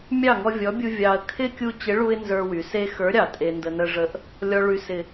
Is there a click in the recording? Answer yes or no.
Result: no